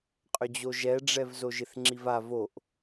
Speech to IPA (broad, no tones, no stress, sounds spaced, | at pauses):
qʼ ʏ d͡ʑ o ʒ ɛ ɖ͡ʐ ɛ v z o ʒ ɪ θ ŋ͡ǁ i v a v o ʔ